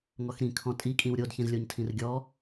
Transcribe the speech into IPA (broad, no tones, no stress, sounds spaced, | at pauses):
ŋ ɔ x ɾ ĩ kʰ ɔ̃ tʼ i kʼ ĩ w ɾʲ o d ç ĩ z lʲ o ɲ tʰ ĩ r ɡʲ ɔ